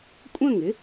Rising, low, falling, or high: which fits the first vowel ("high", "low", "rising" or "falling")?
falling